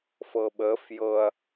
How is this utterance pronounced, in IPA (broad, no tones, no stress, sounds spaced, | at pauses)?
f ɤ ɓ ə f j ɤ ɐ̯